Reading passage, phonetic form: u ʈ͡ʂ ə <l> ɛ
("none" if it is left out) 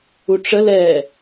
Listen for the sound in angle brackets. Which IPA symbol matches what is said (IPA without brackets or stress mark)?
l